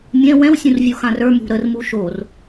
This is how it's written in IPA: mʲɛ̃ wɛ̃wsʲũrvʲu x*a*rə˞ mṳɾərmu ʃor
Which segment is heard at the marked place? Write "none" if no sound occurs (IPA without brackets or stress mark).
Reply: ã